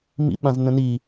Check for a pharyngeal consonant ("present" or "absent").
absent